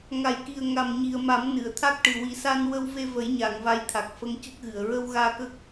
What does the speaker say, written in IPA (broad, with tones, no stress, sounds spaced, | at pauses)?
ŋ a˨˩ j k i˨˩ ə̯ ŋ a˨˩ m ɲ i˨˩ ə̯ m a˨˩˦ m n ɨ˨˩˨ ə̯ t̪ʰ a˦˥ k̚ ʈ ɨ˨˩ w i˨˩ s a˧ n w ə˧ w v e˧ v ə˨˩˦ j ɲ a˨˩˨ ŋ v a˧˥ j t̪ʰ a˨˩ k̚ f ə˧˥ ŋ c ə˦˥ k̚ ɣ ɨ˨˩˨ ə̯ ɹ ə˧ w ɣ aː˧ k ə˦˥ k̚